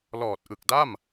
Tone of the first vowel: low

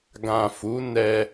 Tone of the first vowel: low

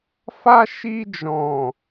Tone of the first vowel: high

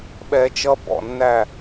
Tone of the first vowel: low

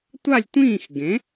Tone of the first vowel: falling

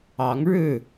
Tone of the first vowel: rising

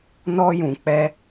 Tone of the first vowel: high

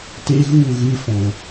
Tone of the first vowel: high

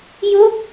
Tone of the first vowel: falling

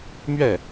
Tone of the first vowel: falling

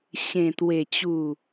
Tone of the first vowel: low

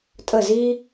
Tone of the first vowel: falling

